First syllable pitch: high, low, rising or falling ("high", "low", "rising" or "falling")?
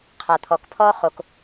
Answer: low